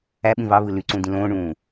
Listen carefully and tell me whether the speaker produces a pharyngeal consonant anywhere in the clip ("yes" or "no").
no